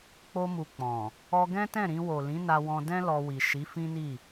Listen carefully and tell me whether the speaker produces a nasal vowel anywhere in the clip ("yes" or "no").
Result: yes